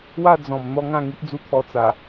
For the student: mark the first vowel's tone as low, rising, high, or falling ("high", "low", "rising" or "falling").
falling